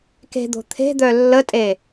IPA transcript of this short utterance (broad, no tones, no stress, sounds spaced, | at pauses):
k e̤ d̪ o̤ t̪ʰ e̤ d̪ œ lː ə tʼ e